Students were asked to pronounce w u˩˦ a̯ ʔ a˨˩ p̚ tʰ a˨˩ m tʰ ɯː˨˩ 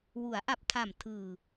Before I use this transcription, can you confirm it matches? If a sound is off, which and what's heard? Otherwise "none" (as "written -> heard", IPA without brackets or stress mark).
none